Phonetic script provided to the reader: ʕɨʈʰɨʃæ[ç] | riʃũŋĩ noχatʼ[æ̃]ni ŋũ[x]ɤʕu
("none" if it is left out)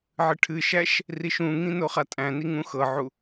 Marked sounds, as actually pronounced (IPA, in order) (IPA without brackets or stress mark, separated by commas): ʃ, æ̃, x